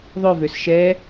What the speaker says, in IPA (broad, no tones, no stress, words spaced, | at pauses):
ðˤøvøs ʃɛ